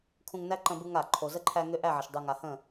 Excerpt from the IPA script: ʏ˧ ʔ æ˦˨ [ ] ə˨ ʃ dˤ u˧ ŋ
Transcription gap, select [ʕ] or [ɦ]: ʕ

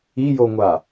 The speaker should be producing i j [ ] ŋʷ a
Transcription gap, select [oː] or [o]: o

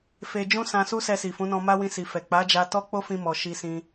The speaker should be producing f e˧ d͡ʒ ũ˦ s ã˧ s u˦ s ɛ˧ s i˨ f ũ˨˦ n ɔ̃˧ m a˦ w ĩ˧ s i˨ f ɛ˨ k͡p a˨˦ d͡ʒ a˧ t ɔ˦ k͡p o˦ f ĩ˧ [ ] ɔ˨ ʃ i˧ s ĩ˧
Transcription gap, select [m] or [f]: m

